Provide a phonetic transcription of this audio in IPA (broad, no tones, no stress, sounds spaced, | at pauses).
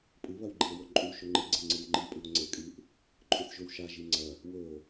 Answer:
pʼ ɨ β ɐ w ɡ͡ǃ i e̯ w o ǃʼ u ʃ ɵ ŋ͡ǃ ɨ ɡ͡ǀ e ŋ͡ǀ ɨ w ŋ͡ǃ i pʼ ʉ o̯ ŋ͡ǀ e kʼ ɨ ʔ | ǃʼ ʉ θ ʒ ɵ w ʃ a ʒ i ŋ͡ǀ ɐ | w ɵ o̯